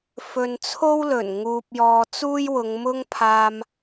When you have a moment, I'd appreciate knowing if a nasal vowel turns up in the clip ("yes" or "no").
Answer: no